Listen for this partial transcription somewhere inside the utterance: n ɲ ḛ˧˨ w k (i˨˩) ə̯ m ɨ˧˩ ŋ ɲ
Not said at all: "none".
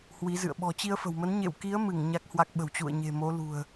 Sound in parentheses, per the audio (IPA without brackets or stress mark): i˨˦